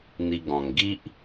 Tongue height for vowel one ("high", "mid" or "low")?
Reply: high